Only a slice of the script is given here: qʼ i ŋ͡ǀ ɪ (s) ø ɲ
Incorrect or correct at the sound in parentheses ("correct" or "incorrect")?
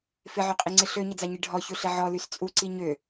incorrect